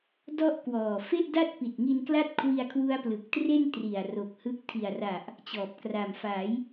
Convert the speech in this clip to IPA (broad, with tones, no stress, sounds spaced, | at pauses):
d ɔ˥˩ ʔ k w ɔː˨˩ f e˥˩ ʔ d a˥˩ t̚ p i˨˩ t̚ ŋ i˧ n k l a˥˩ t̚ kʰ w i˧ a̯ kʰ w u˦˥ a̯ p l ɯ˨˩ k̚ t r e˥˩ n t r i˨˩ a̯ r o˨˩ k̚ h ɯ˦˥ k̚ tʰ i˨˩ a̯ r a˨˩ ʔ | t͡ɕ ɔː˨˩ p̚ k r a˨˩ m f a˩˦ j